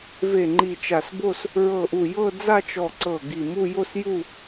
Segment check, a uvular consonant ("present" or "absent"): absent